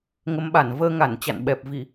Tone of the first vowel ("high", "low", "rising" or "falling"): rising